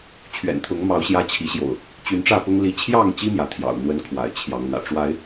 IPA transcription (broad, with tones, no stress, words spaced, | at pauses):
t͡ɕʰɥɛ̰˨˩nt̪ʰʊ˨˦ŋmɑ˨˦ʊ̯ ɕjä˦ t͡ɕʰi˨˦ɕjo̰˨˩ʊ̯ | t͡ɕy˨˦nʈ͡ʂä˥˨pʊ˦ŋ li˨˦t͡ɕʰjɑ˥˨ŋt͡ɕi˦ mjä˨˦t̪ʰjɑ̰˨˩ʊ̯ n̪wə˦nkʰwa̰˨˩ɪ̯ t͡ɕʰjɑ˨˦ŋn̪ä̰˨˩ ʈ͡ʂwa˨˦ɪ̯